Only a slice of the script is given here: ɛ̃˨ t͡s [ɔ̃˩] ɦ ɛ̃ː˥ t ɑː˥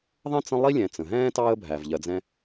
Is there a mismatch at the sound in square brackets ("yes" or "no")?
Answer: yes